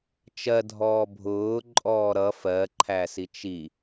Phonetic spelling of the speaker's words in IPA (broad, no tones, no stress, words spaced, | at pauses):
t͡ʃɜdʱɔː bʱʊː ǃʼɔːɾʌ fɜǃʰæ sit͡ʃi